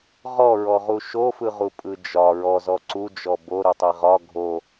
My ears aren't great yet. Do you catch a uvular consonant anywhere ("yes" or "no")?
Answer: yes